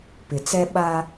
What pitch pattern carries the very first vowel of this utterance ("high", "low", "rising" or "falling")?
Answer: low